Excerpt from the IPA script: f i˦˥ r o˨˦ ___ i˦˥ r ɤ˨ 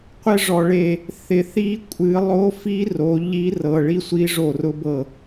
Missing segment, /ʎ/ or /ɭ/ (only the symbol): ʎ